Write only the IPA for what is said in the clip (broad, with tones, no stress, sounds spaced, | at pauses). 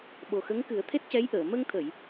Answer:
ɓ o˨˩ x ə˧˥ ŋ k ɨ˨˩˦ ə̯ t̪ʰ e˦˥ t̚ c ɛ˧˥ j ʔ əː˨˩˨ m ə˧ ŋ t̪ʰ ə˨˩˨ j